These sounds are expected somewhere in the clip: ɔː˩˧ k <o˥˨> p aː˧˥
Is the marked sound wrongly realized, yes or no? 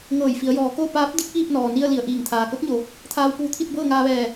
no